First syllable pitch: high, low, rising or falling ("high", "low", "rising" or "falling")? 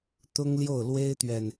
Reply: high